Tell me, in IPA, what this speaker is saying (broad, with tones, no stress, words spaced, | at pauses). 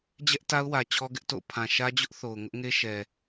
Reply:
d͡ʑɛ˦ʔta˦ʊ̯wä˨ t͡ɕʰɔ˦ɡɪ˦ʔto̰˦˨ʊ̯ pʰã˨ʃä˦d͡ʑʊ˦ʔ θo˨ʊ̯ŋʊ˦ʔŋe˦ ʃɛ˨